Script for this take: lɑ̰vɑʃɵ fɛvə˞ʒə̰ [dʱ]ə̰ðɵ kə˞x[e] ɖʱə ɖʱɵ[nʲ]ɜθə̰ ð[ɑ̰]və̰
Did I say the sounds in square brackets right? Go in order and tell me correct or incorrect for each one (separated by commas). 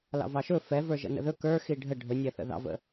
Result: incorrect, incorrect, correct, correct